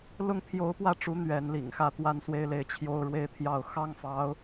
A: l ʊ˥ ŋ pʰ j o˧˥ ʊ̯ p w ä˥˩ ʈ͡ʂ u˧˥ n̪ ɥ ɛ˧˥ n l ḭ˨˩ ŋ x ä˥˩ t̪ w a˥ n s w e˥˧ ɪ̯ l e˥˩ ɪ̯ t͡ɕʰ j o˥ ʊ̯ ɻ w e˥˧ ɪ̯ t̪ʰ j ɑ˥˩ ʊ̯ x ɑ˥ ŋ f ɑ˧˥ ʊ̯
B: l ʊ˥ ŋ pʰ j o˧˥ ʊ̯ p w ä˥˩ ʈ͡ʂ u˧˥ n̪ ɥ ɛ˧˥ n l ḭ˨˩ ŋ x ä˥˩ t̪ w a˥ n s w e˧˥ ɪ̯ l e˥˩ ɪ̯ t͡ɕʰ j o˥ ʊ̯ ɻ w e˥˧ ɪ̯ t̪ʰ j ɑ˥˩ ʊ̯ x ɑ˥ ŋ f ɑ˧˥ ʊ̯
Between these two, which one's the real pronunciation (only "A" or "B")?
A